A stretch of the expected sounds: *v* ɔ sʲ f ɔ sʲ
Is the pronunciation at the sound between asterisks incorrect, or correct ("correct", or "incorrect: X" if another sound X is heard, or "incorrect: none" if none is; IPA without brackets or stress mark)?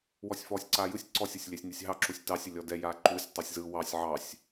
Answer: incorrect: w